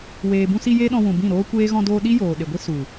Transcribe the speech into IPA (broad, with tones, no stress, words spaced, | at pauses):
weː˨bũ˧si˧ je˦ɗɔ̃˧wũ˨bĩ˦˨ ɾoː˦kʷeː˦ ɣɔ̃˧doː˧ ɗi˦joː˨ɗe˨ɡʷi˦ su˨